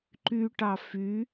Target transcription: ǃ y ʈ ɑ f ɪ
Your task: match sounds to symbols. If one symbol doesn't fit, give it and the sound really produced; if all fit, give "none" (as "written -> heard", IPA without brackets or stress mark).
ɪ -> y